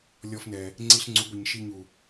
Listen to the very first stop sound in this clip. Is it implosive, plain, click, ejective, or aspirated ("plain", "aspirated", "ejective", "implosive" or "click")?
click